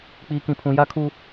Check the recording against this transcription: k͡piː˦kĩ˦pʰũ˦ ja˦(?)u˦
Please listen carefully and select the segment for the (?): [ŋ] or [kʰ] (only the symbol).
kʰ